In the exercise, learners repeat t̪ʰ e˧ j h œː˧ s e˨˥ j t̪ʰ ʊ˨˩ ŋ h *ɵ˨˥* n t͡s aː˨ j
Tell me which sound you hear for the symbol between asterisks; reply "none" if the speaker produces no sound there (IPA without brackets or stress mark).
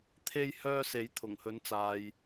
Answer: ɵ˨˥